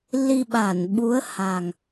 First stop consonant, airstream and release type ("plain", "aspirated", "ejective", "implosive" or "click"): implosive